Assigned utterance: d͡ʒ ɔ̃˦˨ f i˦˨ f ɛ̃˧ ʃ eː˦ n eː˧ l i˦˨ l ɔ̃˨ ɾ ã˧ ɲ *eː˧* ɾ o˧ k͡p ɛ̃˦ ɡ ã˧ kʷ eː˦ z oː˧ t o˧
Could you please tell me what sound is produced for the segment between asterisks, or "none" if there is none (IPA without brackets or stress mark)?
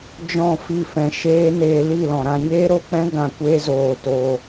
eː˦